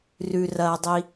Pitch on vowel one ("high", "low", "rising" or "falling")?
low